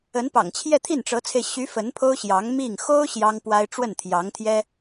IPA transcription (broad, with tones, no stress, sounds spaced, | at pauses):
ə˧˥ n p ɑ̰˨˩ ŋ t͡ɕʰ j ɛ˥˧ t̪ʰ i˥˩ n ʈ͡ʂ ɤ˧˥ t͡sʰ e˧ ɪ̯ ɕ y˧˥ f ə˧˥ n pʰ o˥ ʊ̯ ɕ j ɑ˧˥ ŋ m i˥˩ ŋ x o˥ ʊ̯ ɕ j ɑ˥ ŋ p w a˥ ɪ̯ ʈ͡ʂ w ə˥˩ n t̪ʰ j ɑ˧˥ ŋ t̪ʰ j ɛ˥